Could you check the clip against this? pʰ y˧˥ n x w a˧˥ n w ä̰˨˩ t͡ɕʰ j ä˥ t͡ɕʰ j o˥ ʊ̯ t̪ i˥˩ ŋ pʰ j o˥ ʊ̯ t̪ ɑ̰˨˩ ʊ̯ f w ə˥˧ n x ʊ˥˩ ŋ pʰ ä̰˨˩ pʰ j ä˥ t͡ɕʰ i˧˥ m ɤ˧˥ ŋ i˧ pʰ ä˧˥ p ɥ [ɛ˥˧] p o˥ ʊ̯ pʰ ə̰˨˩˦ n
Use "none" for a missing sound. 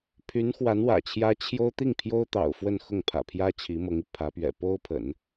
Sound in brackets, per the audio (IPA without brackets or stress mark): ɛ̰˨˩